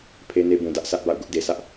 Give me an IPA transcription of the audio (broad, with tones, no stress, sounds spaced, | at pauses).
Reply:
pʰ e˦ n e˦ b ũ˨ d ä˦ ʔ sʰ ä˦ ʔ b a̰˦˨ ʊ̯ ɡ ʊ˦ ʔ d e˨ s ä˦ ʔ